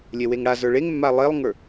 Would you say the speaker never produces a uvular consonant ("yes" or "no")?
yes